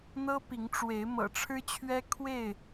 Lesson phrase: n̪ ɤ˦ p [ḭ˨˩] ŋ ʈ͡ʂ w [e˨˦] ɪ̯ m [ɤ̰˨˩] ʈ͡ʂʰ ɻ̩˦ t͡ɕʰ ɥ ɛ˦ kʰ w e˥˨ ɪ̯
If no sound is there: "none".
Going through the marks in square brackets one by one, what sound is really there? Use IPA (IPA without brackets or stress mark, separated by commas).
i˨˦, e˨˦, ɤ̰˨˩